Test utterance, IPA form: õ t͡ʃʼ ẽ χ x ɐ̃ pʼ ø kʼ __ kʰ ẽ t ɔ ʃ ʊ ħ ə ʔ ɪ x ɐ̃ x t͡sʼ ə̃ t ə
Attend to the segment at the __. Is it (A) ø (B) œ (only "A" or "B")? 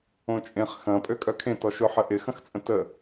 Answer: B